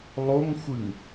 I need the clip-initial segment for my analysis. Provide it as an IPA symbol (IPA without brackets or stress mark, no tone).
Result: lˠ